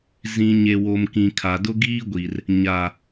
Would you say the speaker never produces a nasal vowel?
no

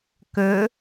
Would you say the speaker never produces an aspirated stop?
yes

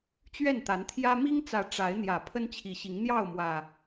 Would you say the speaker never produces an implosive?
yes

